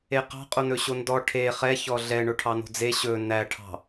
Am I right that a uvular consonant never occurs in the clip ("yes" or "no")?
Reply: no